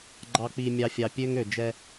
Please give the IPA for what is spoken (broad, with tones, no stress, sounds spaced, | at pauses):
ɡ͡ǃ ɑ˨ k͡p i˨ mʲ ɑ˨ fʲ ɑ˨ pʲ ø˦ ŋ ø˨ d͡ʒ ɛ˦